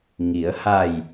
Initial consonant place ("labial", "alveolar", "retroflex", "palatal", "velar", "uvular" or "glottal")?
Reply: velar